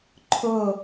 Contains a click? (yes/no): yes